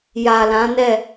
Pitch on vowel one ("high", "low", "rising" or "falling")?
low